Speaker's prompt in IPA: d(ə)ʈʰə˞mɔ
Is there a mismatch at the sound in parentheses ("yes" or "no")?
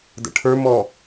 yes